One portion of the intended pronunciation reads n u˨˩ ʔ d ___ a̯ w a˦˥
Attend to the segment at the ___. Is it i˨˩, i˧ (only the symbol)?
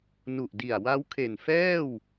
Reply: i˨˩